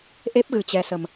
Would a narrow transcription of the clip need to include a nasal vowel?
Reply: no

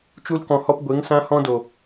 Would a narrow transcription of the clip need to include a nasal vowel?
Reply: yes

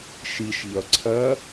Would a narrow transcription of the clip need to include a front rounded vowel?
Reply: no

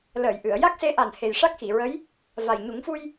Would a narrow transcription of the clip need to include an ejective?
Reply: no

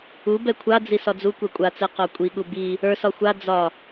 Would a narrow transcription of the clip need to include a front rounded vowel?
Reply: no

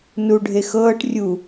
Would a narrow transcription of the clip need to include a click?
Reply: no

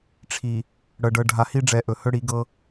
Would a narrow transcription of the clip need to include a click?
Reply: no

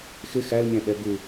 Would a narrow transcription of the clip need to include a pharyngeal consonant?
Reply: no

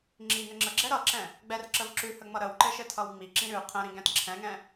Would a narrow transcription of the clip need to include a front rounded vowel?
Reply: no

